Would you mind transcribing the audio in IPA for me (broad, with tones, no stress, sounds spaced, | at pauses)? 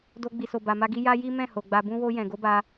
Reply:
d o˧ ɡ͡b i˨ s o˨ b a˨ m a˧ ɡ i˧ j a˦ j i˦ m ɛ̃˦˨ h o˨ ɡ͡b a˨ b ũ˧ w o˧ j ɛ̃˨ ɡ o˨˦ b a˧